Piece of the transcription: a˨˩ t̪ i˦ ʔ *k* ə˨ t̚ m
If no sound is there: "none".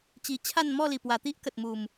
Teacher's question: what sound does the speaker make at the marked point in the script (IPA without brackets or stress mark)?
k